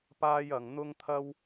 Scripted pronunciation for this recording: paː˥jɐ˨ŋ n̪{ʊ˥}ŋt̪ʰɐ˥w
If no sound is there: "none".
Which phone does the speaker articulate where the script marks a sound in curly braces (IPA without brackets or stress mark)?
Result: ʊ˥